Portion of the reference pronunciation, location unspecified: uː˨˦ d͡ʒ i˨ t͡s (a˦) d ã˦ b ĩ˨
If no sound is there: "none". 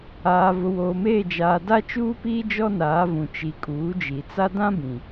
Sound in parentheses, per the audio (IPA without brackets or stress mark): a˦